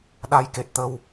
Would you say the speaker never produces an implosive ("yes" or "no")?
no